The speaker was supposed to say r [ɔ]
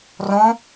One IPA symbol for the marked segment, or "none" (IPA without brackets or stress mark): ɔ̃